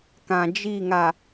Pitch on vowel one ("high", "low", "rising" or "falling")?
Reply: low